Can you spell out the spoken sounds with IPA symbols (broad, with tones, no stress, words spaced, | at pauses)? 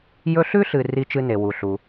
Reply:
jɵ˦ɬʉ˥ɬɨ˨ ri˦t͡ʃɨ˦ne˩ wu˩ɬu˩